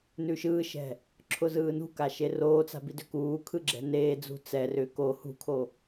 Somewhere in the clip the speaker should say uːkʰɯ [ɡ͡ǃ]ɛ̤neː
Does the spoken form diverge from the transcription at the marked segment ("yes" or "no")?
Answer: yes